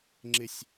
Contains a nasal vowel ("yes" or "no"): no